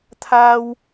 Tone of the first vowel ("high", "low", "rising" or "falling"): high